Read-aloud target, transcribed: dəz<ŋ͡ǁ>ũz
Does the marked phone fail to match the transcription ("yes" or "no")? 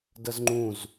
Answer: yes